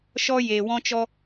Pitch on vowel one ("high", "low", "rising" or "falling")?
high